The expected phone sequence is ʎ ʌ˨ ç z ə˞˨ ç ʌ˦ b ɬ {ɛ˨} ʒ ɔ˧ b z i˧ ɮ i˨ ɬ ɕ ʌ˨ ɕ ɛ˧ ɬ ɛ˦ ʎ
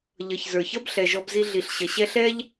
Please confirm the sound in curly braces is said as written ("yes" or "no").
yes